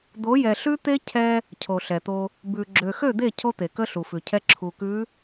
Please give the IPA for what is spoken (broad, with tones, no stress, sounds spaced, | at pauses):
d̪ o˨˦ j ɛ˨ ɬ ʉ˦ t̪ e˦ cʰ ɛ˦ | cʰ o˨ ɬ ɛ˨ t̪ o˦ | b ʉ˨ ɡ͡ǁ ø˨ x ø˦˨ d̪ e˦˨ cʰ o˦ t̪ e˨ k ə˦ ɬ u˨ f ʉ˨ cʰ ɛ˦ ǁʰ u˨ k ʉ˨˦